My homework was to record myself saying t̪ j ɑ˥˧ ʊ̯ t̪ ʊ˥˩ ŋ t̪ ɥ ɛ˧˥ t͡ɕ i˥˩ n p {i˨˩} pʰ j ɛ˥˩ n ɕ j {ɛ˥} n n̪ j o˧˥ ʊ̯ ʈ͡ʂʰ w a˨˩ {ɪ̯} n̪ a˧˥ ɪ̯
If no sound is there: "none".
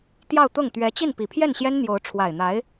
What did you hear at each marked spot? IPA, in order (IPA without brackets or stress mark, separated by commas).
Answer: i˨˩, ɛ˥, ɪ̯